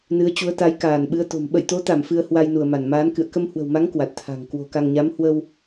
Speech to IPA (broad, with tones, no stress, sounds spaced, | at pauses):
n ɨ˨˦ ə̯ t͡ɕ u˨˦ ə̯ t̪ a˨˦ j k aː˧˩ n ɓ ɨ˨˦ ə̯ t̪ o̤˨˩ m ɓ ə̰˧˨ j t̪ o˨˦ t̪ a˧˩ m f ɨ˧ ə̯ h w a˧ j n u˧˩ ə̯ m a˧˩ n m aː˨˦ n k ɨ̰˧˨ ə̯ k ə˧ m h w ə̤˨˩ w m a˨˦ ŋ k w a˨˩ t̚ t̪ʰ a̤˨˩ ŋ k w o̤˨˩ k a˧ ŋ ɲ a˨˦ m h w ə˧ w